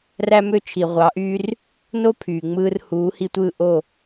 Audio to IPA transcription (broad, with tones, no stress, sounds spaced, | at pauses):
r æ˥ m ø˥ t͡ʃʰ i˩ ʁʷ ɑ˩˥ ʔ yː˥ r | n o˥ pʰ yː˩ ŋ͡m ɯː˧ r h uː˩˥ h i˧ tʷ ɯː˥˩ ʔ o˥˩